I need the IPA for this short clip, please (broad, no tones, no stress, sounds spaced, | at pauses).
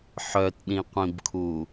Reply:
ħ œ t ɗ ĩ qʷ ĩ b kʰ u